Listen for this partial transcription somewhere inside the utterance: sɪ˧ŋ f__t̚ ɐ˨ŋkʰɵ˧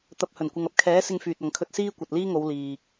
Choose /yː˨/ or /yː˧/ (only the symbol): yː˨